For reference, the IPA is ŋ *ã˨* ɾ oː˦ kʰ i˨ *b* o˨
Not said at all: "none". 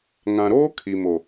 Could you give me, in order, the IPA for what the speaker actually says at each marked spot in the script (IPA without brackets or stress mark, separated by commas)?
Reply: ã˨, m